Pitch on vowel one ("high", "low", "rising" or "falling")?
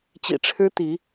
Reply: low